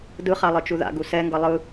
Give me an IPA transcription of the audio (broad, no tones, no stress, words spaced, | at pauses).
dɯχa lˠɯt͡ʃuða̰ ɡusɛŋɡʌ lˠɯ